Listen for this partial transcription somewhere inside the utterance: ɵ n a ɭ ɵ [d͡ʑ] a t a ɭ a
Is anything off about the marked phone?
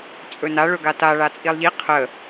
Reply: yes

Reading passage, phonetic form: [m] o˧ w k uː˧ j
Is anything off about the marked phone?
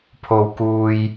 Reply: yes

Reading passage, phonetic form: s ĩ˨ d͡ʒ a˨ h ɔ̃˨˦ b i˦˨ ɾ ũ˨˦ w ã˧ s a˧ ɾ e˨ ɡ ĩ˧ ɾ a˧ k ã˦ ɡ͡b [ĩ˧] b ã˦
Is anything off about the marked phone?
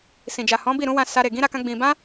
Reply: no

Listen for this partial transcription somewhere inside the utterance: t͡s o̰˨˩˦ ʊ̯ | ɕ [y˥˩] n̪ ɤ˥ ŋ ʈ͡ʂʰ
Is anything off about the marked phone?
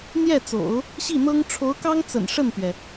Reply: yes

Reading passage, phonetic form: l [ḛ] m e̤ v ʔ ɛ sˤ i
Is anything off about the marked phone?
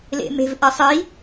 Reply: no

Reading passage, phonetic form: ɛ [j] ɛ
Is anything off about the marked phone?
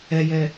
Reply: no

